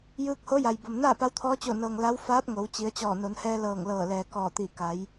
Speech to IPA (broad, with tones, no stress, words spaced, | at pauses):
jɯː˧k̚ho˧˥ja˩j bo˩mnaː˥˨pa˧˥wt̪ʰɔː˧˥ t͡ɕo˧˩nɤː˩ŋ la˧˥w faː˧˥p̚ŋo˩˧w t͡ɕi˩˧ə̯t͡ɕɔː˧˩ no˩˧nhɛː˧ lɤː˧˩ŋlɤː˧˩lɛː˩ kɔː˧˩t̪i˧˩ ka˩˧j